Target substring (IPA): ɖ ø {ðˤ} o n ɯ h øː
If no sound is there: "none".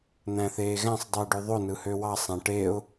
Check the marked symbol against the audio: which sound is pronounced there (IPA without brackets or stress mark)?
ðˤ